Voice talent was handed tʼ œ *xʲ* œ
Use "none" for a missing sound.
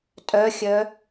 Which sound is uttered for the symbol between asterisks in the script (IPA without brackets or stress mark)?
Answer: xʲ